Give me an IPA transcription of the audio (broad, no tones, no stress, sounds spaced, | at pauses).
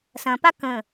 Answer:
s ɐ̃ p a k ə̃